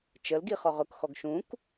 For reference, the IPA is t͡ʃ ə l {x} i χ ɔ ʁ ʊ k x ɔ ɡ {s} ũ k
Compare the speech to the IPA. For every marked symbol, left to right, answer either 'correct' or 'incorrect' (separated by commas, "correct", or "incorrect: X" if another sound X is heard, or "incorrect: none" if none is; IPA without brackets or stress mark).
incorrect: ɡ, incorrect: ʃ